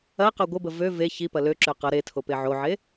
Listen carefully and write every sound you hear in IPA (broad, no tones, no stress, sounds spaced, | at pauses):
ɐ q ø ɡʷ ə b ə v ø v e ç i p ɐ l ø ǁ ø q ʌ ɾ e tʰ o p e ʕ o ʕ e